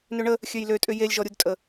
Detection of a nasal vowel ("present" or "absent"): absent